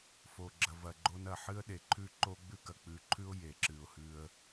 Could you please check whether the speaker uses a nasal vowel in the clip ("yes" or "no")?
no